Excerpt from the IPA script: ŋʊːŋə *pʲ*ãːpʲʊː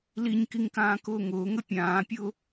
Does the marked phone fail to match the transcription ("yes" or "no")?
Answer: no